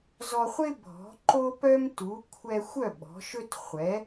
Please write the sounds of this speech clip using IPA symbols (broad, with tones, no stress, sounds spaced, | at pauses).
z ɔ˧ χʷ ɪ˥ bʱ ɔ̤˩˥ ǃ o˥ p œ˥ m t u˩˥ kʷʰ ɛ˧ xʷ œ˥˩ ɓ ɔ̤˩˥ ʃ ɵ˥ t χʷ ɛ˩˥